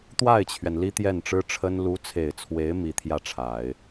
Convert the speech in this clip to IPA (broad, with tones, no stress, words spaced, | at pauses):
t̪wa˥˩ɪ̯t͡ɕʰɥɛ˩n li˥t̪jɛ˥˩nʈ͡ʂɻ̩˥ʈ͡ʂʰə˥n lu˧˥t͡sʰe˨˩ɪ̯t͡sʰwe˧˥ɪ̯ mi˧˥t̪ʰjä˥˩ʈ͡ʂʰa˨˩˦ɪ̯